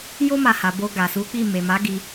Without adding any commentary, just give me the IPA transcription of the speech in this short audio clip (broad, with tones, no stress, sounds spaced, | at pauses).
j o˦ m a˧ h a˨ b o˧ ɡ a˨ s u˨˦ k͡p i˦˨ m e˨ m a˨˦ ɡ i˧